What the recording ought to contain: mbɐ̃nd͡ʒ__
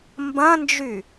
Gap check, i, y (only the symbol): y